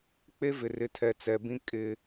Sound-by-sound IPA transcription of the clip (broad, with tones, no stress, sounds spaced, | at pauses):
k͡p e˦ v ɪ˨ r ɪ˨˦ tʰ ɛ˨ t͡s ɛ˨ b ĩ˦ kʼ ɪ˦